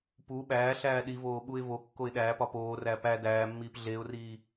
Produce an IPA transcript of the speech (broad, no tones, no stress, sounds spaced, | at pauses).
p u ɓ æː ɬ æː ɗ i v oː ɓ u ɪ̯ v o kː o ɪ̯ ɗ æː p ɒ p oː r æ p æ d æː mː iː p ɮ e ʊ̯ r iː